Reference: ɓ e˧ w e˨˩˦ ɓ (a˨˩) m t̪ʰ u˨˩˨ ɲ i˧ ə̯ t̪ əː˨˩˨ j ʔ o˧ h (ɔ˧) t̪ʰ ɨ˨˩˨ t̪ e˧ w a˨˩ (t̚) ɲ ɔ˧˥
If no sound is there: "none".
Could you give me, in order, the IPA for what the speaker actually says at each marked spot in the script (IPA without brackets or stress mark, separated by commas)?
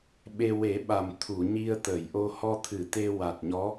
a˨˩, ɔ˧, t̚